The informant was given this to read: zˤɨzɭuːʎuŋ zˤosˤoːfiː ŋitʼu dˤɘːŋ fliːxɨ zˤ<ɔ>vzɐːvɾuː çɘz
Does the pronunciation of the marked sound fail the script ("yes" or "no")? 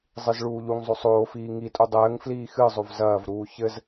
yes